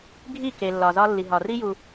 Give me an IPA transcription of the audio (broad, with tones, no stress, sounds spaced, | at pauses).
ɡʱ i˦˨ k e˨ lː ɒ˨ z ɒ˧ lː i˨ ɦ ɒ˨ r i˦ j u˧